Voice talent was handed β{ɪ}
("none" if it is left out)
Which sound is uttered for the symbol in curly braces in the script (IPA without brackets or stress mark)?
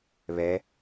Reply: ɛ